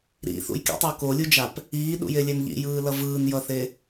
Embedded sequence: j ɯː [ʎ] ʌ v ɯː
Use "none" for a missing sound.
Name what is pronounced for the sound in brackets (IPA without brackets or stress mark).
l